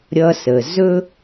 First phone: ɾʲ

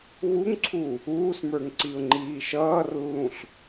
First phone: ɣ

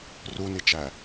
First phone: r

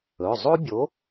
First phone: ɵ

